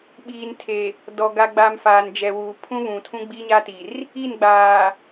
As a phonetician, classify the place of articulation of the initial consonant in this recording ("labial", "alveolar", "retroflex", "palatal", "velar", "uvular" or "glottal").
labial